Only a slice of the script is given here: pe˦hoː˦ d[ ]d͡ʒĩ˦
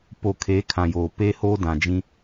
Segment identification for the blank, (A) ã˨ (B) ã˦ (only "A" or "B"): A